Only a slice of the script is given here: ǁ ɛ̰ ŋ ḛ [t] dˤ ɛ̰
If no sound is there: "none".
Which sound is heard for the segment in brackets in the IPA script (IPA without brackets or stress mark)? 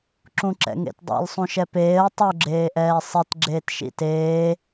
t